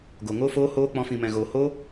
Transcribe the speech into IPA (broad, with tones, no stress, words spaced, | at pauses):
ɡo˨ŋo˦foː˦hoː˦ k͡pɔ̃˦fĩ˧mɛ̃˧ɣoː˧ hoː˦